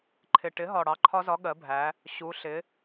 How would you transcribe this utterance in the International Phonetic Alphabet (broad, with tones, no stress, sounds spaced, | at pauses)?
ǃʰ ɪ˨˩ ʈ ɪ˨˥ ɦ ɒ˨˩ ɽ ɑ˨˥ ǃʰ ɒ˦˥ z ɒ˨˥ ɠ ɜ˨˥ bʱ æ˨˥ | ɕ u˨˥ ɬ ɪ˨˥